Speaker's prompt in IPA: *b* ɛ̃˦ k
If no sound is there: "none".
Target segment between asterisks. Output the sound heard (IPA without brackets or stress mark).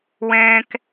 w